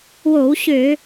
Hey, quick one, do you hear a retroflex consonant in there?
no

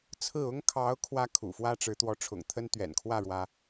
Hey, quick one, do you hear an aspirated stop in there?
yes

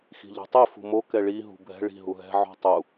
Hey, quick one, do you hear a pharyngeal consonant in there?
yes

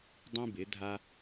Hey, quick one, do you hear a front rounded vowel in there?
no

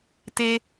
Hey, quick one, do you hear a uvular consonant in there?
no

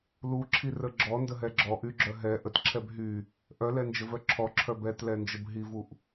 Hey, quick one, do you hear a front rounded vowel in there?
yes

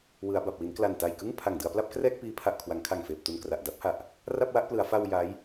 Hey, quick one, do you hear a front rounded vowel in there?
no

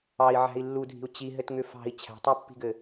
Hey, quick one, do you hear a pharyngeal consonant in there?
yes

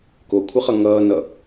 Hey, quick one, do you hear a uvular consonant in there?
yes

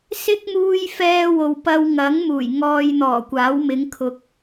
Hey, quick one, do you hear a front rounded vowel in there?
no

